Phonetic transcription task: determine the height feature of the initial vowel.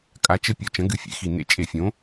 low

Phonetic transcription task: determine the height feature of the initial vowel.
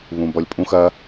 high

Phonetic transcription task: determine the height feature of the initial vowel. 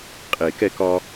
mid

